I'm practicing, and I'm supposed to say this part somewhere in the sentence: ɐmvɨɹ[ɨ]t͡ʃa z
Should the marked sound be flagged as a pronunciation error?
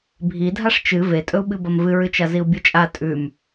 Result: no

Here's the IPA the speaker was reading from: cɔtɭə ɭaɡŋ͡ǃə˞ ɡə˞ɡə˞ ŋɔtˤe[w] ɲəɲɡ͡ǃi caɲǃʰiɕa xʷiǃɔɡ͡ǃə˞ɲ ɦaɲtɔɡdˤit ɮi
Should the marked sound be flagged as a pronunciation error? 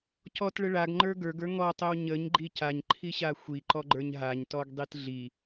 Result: no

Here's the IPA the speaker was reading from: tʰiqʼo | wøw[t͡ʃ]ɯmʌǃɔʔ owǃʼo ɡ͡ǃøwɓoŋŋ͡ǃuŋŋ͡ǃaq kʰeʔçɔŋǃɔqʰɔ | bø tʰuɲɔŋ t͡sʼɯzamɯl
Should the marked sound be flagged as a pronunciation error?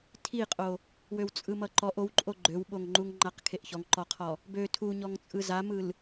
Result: yes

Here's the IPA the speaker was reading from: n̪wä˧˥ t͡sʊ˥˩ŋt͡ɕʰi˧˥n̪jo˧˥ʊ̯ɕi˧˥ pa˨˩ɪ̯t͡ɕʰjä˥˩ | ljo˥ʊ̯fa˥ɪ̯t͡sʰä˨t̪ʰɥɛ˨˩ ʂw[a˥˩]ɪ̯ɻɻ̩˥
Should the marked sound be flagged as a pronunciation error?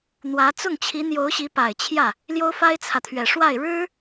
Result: no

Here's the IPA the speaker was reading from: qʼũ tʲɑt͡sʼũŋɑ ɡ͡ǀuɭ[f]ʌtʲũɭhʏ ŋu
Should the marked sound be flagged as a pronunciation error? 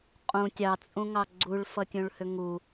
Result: no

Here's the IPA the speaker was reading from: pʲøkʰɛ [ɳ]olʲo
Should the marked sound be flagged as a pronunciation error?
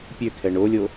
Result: no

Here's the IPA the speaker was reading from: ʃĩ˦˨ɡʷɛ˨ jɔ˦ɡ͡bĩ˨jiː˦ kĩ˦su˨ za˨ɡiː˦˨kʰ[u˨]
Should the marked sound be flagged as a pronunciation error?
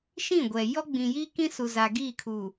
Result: no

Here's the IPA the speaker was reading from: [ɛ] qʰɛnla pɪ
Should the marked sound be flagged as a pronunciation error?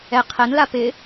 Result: no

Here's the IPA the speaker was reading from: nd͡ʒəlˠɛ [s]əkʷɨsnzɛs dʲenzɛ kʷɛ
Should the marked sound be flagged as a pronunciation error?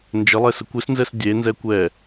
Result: no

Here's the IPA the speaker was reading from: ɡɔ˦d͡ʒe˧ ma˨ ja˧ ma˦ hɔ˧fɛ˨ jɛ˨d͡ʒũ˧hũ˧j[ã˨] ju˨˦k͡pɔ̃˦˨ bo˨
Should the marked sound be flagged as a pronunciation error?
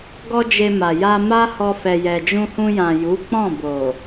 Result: no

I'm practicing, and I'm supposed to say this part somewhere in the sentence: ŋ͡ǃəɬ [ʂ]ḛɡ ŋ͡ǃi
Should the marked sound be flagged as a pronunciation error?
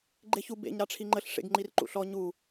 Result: no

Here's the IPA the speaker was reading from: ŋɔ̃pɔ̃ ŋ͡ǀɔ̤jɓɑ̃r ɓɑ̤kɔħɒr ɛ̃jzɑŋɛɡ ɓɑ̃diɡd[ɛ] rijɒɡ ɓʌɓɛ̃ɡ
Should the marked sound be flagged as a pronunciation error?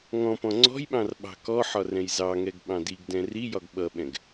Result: yes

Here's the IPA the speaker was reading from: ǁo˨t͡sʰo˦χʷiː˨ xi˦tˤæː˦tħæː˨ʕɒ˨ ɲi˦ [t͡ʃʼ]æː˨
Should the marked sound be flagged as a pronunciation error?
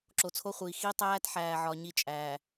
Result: no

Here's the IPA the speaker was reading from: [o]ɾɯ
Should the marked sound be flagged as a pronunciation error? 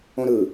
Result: yes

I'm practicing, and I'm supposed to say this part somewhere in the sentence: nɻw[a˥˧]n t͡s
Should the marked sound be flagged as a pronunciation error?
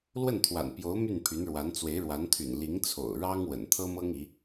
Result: yes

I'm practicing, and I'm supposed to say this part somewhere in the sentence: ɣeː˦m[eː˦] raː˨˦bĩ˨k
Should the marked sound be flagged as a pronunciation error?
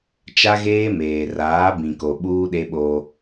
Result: yes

